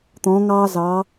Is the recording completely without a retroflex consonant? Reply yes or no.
yes